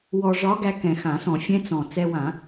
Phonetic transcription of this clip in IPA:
w ɔ˧ ʐ ɒ˧˥ ɡ æ˧ k ɛ̃˨˩ x ã˨˩˦ s ɔ̃˨˩˦ fʲ ɛ̃˧˥ t͡s ɔ̃˨˩ t͡s ɛ˧ w ã˨˩˦

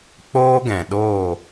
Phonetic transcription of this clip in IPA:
k͡p oː˦ ɡ ɛ̃˨ ɗ oː˦˨

